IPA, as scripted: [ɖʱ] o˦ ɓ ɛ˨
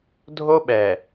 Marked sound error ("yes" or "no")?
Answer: yes